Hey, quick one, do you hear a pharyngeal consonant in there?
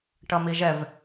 no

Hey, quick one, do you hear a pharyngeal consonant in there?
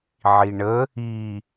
yes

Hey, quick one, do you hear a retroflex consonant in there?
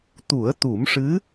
yes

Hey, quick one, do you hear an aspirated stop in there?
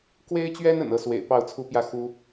yes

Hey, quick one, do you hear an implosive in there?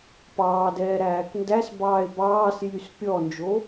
no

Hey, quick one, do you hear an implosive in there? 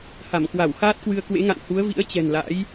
no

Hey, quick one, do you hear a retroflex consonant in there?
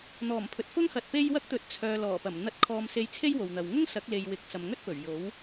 no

